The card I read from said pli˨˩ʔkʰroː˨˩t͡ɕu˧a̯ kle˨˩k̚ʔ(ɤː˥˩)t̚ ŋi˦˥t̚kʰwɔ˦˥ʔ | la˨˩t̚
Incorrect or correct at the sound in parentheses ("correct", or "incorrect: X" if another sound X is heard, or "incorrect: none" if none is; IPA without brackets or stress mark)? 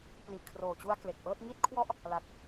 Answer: correct